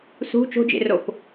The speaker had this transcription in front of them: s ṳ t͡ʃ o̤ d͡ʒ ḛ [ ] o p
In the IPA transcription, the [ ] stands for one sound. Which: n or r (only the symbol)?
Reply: r